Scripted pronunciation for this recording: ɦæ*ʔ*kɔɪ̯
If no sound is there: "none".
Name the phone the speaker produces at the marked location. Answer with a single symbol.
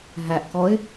ʔ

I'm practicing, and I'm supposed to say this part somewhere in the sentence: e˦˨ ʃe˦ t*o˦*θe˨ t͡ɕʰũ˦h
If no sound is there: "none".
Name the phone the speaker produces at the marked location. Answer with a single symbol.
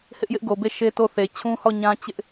o˦˨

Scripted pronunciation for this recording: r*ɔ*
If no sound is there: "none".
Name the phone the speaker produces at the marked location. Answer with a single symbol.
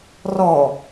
ɔ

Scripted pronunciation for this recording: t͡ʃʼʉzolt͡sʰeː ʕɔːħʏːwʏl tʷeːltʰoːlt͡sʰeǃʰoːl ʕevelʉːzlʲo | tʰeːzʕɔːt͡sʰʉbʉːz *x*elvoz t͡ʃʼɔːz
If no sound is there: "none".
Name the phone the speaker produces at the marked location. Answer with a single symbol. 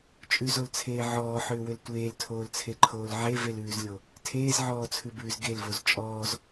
ɡ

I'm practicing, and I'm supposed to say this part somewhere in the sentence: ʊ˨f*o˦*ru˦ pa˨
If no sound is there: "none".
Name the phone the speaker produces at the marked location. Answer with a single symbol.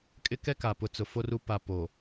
o˦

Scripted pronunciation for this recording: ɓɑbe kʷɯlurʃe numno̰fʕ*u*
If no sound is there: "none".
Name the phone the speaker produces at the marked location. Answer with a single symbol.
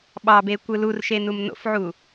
u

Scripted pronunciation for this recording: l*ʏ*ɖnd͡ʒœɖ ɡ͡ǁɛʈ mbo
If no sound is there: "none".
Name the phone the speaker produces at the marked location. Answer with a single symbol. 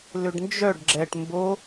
ʏ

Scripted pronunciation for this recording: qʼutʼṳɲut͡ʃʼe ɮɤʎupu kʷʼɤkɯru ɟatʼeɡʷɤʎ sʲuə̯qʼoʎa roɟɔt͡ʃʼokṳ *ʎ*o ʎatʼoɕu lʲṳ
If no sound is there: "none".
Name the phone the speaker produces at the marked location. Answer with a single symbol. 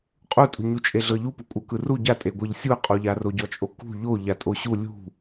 ʎ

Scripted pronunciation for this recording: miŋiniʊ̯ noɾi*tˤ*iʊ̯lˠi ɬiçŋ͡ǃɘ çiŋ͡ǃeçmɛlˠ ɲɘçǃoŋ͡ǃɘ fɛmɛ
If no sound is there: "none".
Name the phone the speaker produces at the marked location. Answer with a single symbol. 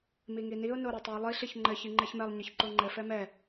tˤ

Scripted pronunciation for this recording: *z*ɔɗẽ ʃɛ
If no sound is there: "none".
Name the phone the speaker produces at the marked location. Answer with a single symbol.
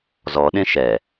z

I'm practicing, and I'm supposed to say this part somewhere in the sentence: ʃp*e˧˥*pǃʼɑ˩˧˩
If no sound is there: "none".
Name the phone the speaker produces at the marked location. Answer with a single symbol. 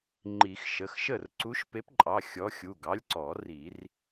e˧˥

